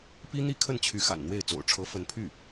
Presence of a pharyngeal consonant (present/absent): absent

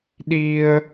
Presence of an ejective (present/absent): absent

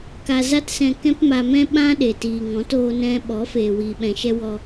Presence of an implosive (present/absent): present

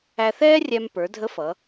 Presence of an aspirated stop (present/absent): absent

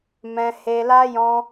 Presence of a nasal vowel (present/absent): present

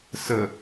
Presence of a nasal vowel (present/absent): absent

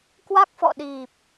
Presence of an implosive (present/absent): present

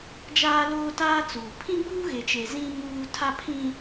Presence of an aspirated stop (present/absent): present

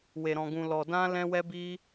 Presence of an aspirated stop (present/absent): absent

